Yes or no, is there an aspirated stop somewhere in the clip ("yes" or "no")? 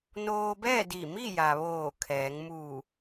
yes